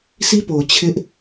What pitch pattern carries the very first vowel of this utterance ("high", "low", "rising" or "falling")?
high